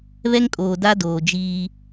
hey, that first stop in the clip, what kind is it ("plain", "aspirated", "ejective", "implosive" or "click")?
ejective